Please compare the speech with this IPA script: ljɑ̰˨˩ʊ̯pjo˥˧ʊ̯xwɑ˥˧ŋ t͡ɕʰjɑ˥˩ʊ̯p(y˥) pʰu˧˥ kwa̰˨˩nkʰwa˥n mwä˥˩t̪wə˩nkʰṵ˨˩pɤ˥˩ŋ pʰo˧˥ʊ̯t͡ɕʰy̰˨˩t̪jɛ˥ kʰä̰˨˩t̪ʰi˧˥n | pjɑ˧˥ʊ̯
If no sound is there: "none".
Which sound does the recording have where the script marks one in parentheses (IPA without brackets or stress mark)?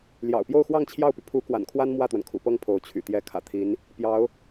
y˩